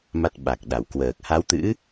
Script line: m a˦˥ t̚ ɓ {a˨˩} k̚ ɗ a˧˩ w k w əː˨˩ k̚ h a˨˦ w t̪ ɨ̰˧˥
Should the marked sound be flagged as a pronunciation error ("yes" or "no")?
no